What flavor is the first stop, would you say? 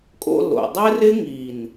ejective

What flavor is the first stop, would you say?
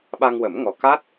implosive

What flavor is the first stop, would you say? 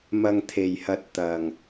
aspirated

